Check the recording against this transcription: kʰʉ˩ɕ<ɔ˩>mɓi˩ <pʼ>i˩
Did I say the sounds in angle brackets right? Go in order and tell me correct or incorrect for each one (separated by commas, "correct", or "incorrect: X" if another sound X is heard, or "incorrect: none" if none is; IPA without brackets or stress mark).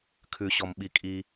correct, incorrect: kʼ